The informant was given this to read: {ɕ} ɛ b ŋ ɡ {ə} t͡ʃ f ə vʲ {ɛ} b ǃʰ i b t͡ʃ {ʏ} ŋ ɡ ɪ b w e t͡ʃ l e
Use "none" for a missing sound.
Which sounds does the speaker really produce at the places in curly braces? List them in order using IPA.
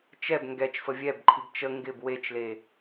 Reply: t͡ʃ, ɛ, ɛ, ə

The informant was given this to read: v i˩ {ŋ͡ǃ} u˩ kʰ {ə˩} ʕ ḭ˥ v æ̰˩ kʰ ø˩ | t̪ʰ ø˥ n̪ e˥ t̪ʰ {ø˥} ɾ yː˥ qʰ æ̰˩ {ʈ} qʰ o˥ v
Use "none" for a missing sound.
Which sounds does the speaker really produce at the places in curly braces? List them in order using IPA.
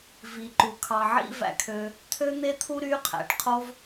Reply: ǃ, ɑ˩, u˥, ʈ

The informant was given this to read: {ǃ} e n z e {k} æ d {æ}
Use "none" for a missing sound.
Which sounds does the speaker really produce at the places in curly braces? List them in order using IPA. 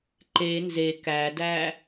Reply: ǃ, k, æ

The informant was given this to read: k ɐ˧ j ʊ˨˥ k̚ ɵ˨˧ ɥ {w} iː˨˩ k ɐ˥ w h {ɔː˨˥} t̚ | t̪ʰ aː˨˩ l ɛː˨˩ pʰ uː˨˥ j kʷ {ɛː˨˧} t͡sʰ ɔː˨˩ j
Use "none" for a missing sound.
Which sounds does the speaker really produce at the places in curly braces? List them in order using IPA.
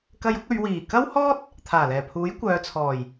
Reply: w, ɔː˥, œː˨˧

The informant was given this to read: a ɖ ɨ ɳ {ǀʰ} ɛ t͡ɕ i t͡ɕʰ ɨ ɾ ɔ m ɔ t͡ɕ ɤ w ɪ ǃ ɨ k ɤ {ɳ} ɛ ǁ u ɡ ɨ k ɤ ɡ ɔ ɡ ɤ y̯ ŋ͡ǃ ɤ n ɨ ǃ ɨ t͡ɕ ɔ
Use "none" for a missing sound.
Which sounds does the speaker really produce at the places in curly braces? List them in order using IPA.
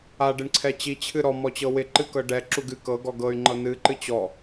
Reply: ǀʰ, ɖ

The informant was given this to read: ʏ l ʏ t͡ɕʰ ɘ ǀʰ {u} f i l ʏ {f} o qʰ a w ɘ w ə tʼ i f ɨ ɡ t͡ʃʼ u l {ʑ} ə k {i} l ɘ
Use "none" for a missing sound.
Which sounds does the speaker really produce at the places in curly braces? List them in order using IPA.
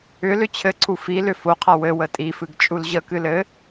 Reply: u, f, ʑ, ɨ

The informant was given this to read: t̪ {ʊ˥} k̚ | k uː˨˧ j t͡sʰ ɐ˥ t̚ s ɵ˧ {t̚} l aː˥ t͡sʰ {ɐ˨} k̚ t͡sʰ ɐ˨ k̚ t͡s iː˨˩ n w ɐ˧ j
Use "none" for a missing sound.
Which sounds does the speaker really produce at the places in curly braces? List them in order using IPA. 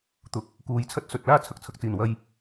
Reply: ʊ˨˥, t̚, ɐ˨

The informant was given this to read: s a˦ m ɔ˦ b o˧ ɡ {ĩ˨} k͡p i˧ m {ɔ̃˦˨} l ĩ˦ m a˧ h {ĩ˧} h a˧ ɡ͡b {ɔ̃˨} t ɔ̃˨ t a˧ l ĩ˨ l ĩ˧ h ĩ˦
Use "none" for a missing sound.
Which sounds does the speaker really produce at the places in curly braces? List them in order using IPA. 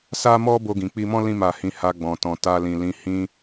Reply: ĩ˨, ɔ̃˦, ĩ˧, ɔ̃˨

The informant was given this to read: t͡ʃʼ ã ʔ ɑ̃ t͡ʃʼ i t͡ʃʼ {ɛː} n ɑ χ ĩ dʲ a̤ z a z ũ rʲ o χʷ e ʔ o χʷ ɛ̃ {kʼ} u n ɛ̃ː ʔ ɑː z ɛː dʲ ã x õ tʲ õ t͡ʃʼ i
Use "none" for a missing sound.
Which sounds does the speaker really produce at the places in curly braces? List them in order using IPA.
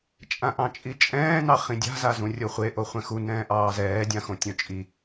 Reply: ɛ̃ː, x

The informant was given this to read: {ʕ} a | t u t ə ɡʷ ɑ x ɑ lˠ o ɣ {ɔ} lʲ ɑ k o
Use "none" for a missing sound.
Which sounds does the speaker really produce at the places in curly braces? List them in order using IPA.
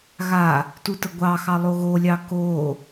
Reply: ɣ, o

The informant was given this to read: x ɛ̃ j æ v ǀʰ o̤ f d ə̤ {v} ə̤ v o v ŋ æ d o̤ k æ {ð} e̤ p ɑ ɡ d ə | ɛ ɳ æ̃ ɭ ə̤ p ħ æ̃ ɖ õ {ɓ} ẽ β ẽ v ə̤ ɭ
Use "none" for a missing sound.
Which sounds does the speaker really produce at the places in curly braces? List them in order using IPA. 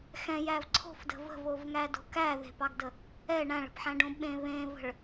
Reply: v, ð, ɓ

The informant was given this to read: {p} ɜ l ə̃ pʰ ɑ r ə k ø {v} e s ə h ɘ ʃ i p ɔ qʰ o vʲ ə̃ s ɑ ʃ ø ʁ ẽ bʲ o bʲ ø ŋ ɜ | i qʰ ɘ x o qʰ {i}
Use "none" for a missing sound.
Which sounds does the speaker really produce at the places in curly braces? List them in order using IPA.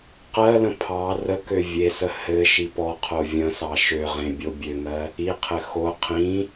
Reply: q, vʲ, ĩ

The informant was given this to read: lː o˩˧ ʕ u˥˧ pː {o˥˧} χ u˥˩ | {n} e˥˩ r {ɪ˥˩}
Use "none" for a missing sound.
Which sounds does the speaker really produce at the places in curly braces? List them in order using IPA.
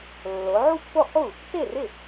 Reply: o˥˩, t, ɪ˥˩

